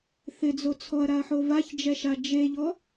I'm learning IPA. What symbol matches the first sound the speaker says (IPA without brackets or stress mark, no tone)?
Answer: θ